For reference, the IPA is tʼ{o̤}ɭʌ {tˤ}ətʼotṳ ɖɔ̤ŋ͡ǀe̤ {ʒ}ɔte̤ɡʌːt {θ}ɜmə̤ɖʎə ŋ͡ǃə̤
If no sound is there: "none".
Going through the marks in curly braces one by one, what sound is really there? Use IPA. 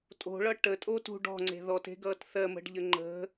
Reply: o̤, ʈ, ð, θ

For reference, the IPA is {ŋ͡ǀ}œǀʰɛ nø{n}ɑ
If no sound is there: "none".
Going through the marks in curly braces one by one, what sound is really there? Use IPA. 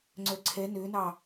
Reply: ŋ͡ǀ, n

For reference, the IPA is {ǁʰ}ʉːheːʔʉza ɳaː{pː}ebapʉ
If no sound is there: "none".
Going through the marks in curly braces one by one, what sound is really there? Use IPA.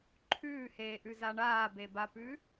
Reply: ǃʰ, b

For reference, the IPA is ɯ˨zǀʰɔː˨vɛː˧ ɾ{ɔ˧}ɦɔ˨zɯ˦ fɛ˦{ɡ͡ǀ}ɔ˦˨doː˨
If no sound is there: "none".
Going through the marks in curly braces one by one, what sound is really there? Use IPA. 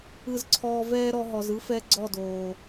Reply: ɔ˧, ɡ͡ǀ

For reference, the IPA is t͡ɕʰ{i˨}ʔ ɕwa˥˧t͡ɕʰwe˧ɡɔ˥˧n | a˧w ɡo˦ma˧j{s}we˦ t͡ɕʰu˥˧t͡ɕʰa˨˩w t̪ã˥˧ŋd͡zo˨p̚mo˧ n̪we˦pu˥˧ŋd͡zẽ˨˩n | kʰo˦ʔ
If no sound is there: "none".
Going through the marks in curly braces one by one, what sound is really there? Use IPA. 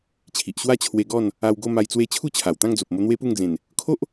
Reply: i˨, t͡s

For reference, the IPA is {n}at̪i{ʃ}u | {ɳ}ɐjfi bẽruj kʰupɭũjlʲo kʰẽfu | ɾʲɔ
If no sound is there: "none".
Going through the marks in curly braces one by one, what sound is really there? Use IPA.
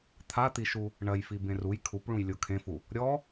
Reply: t̪ʰ, ʃ, ɳ

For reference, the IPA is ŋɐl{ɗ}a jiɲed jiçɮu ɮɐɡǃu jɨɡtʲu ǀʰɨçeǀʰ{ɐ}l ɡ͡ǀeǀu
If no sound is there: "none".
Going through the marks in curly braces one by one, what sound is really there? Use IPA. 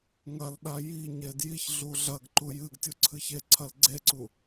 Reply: ɗ, ɐ

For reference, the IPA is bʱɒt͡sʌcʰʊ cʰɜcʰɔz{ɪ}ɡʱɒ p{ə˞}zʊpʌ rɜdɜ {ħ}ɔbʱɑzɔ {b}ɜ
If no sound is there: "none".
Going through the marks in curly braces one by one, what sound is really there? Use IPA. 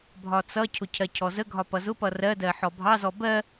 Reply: ə, ʌ, ħ, b

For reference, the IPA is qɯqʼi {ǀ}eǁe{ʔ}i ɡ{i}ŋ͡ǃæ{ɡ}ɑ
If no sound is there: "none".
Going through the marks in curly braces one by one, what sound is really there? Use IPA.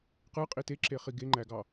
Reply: t, χ, e, ɡ

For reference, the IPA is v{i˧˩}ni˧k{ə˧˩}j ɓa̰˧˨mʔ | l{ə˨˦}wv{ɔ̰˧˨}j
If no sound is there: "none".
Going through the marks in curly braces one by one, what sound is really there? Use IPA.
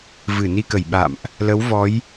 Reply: ɨ˧˩, ə˧˩, ə˨˦, ɔ˨˦

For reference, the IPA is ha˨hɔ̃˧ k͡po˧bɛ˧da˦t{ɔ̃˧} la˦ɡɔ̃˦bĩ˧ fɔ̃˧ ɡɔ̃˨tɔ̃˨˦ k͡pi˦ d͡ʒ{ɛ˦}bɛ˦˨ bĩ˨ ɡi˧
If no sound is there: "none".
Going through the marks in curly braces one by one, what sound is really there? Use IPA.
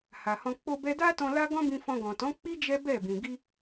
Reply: ɔ̃˧, ɛ˦

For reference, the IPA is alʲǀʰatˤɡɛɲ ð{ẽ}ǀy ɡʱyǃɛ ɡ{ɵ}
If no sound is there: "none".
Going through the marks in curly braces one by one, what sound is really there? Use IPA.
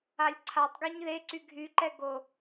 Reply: e, o

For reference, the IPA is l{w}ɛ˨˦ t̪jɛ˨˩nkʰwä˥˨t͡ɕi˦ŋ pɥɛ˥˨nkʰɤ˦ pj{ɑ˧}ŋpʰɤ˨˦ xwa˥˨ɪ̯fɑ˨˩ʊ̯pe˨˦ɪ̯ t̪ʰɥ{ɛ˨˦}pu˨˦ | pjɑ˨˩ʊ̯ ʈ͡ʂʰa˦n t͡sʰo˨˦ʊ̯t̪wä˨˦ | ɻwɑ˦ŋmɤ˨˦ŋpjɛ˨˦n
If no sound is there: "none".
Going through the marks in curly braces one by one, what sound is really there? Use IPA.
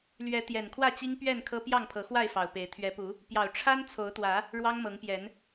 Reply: ɥ, ɑ˥˨, ɛ˨˦

